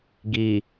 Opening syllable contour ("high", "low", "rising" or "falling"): low